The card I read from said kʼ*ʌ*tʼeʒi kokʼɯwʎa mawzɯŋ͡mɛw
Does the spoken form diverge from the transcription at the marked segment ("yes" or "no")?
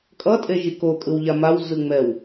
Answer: no